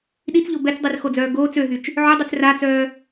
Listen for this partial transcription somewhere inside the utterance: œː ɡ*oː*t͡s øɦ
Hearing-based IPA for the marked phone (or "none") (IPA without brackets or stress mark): oː